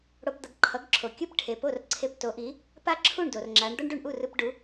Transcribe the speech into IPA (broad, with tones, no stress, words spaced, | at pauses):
ɽo˧pd̪ʌ˧ɡǃʰʌ˩˥ɡǁʰo˩ kʲɯ˥pʈʰe˩ po˥˩rǀʰe˧pto˩˥ʔi˩˥ | pa˥˩ǁʰu˥˩ɳdo˩r ŋ͡ǁa˩˥ɳ d̪ʌ˥ɳɖu˥˩ɳʔu˥˩rɯ˧p ɖu˩˥